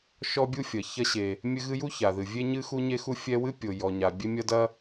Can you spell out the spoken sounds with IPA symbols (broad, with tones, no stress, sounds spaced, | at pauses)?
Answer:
ʃ ɔ˥ bʲ u˥ fʲ ɐ˩ ç ɐ˥ ɕ e˩ | mʲ ɘ˥ ɣ ɨ˥ j u˥ ç a˩ ð ɨ˩ vʲ e˥ ɲ ɨ˥ x u˥ ɲ e˥ x u˥ fʲ ɛ˥ w ɨ˥ pʲ o˩ j ɔ˩ ɲ a˩ bʲ e˥ mʲ ɐ˥ d ɐ˥